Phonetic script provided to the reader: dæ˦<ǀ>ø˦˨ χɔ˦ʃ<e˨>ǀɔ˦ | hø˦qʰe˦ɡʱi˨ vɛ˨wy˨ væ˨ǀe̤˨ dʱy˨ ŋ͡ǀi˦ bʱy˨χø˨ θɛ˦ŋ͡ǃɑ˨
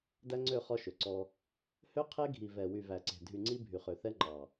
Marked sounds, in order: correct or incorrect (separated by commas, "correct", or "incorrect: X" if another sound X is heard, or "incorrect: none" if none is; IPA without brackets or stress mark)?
incorrect: ŋ͡ǀ, incorrect: ø˨